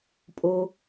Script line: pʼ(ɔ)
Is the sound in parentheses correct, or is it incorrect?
incorrect